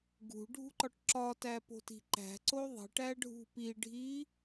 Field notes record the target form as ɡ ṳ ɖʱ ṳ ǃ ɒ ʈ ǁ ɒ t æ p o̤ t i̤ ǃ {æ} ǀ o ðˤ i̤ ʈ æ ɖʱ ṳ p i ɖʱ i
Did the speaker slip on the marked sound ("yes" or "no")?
yes